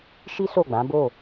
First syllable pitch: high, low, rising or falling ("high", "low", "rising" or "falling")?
high